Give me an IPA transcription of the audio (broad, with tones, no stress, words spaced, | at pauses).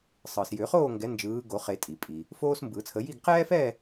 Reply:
sˤɯ˩s jʏ˨˩˦χoː˥˧ŋɡɛ˨˦ nd͡ʒɯː˨˦ɡo˨˩˦χe˨˩˦ tʼi˩pʼi˩ | foː˥smbɯ˨˩˦t͡sʰə˨˦ ji˥˧ɡ qɛː˥fɛ˥˧